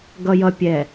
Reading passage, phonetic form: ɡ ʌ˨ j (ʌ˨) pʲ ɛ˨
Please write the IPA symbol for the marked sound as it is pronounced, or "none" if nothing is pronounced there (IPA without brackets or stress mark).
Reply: ʌ˨